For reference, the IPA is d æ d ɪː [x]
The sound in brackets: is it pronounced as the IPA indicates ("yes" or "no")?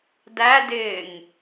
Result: no